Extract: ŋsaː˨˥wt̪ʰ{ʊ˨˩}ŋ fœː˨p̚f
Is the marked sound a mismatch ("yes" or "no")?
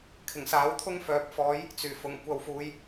yes